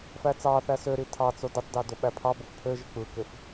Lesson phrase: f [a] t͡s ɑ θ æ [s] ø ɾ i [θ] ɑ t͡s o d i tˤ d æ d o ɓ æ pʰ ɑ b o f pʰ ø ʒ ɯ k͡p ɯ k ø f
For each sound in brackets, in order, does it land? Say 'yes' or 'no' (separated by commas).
no, yes, no